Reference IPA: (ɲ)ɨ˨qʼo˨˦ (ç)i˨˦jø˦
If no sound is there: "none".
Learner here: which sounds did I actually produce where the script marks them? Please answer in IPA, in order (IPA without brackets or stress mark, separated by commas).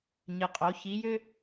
ɲ, ç